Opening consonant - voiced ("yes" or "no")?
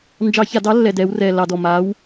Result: yes